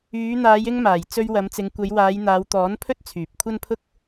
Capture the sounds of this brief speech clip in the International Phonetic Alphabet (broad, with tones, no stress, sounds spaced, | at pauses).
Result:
yː˨˧ n̪ aː˨˧ j ɪ˧ ŋ m aː˨˩ j t͡s ɵ˧ ɥ w ɐ˨˧ m t͡s ɪ˨˧ ŋ kʷ ɐ˨˧ j w aː˨˧ j n̪ aː˨˧ w t̪ ɔː˨˥ n pʰ ɵ˥ t̚ t͡sʰ yː˨ p̚ kʷʰ ɐ˥ n pʰ ʊ˥ k̚